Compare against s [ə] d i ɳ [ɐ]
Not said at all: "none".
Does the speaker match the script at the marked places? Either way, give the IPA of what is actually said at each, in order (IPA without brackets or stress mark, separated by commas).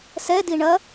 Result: ɛ, ɐ